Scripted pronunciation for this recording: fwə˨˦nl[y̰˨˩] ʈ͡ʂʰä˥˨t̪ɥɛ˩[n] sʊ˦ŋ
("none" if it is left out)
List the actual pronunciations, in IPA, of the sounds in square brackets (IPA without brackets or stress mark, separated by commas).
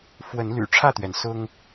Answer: y̰˨˩, n